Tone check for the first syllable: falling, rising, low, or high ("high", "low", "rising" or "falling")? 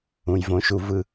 low